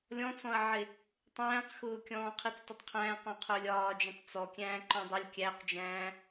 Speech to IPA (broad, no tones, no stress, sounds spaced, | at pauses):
lʲ ɔ̃ t͡s ɔ̃ ɐ̯ ʕ ɪ | tˤ æ̃ː q x ʊː kʲ ɔ̃ː qʰ i t͡s t ɪ tˤ qʰ æ̃ː q ɔ̃ qʰ ʊː lʲ ɒː d͡ʒ ɔ̃ tˤ t͡s ɔ kʲ æ̃ː ǃ ɔ̃ dˤ ʊ lʲ kʲ æ q d͡ʒ æ̃ː